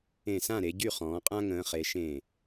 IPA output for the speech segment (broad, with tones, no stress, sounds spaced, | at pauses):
ẽ˧˩ s ã˥˨ ɾ e˩˧ ɟ y˥˨ χ ɔ̃ː˩˧ qʼ ã˦ ŋ ə̃ː˩˧ χ e˩˧ ʃ ẽ˧˩